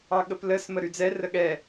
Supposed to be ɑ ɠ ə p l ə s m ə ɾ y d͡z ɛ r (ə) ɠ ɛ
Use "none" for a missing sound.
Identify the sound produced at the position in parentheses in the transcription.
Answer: ə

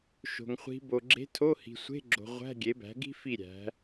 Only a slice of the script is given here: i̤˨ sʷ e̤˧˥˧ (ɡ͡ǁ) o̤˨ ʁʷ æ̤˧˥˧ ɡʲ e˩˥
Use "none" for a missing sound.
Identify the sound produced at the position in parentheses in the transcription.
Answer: ɡ͡ǁ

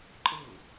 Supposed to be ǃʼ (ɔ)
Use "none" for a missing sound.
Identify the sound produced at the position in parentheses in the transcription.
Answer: ɤ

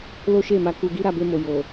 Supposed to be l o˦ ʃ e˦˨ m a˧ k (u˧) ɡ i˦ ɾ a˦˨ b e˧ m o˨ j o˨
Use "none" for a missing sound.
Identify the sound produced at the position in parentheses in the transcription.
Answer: u˧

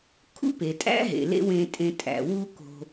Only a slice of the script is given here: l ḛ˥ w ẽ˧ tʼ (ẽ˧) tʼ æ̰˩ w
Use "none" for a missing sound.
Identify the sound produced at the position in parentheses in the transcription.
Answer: ẽ˧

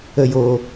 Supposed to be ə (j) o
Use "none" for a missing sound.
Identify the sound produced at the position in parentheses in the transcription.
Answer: j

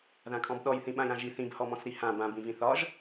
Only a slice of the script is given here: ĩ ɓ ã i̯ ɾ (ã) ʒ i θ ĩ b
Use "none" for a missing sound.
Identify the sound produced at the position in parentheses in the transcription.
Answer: ã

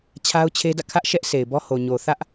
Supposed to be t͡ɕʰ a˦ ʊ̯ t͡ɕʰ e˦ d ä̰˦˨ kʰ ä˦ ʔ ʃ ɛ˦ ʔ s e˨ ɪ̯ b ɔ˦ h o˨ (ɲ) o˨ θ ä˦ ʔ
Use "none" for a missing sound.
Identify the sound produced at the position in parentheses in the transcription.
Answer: ɲ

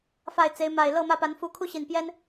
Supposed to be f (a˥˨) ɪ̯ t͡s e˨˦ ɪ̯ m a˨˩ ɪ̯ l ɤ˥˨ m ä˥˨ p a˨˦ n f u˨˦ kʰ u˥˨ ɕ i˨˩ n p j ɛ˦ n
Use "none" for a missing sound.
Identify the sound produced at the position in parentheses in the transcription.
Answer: a˥˨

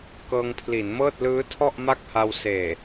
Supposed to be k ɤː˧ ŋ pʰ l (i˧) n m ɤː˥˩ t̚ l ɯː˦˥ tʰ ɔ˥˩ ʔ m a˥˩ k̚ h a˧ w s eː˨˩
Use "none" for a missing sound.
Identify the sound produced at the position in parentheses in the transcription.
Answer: i˩˦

